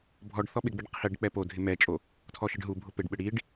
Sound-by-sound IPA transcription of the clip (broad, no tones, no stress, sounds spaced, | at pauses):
bʱ ɔ ɖ θ ɔ ɓ ɪ ɡ͡b e ɖ qʰ i ɖ k͡p ɛ p o dʱ ɪ m ɛ t͡ʃʼ o | tʰ ɔ ʃ ɪ ɖ ɦ u bʱ ʊ p e ɖ ɓ ɪ ɽ i ɖ